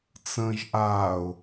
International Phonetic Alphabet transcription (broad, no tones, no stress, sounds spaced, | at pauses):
t͡s ə̃ː ʒ ʔ aː ʊ̯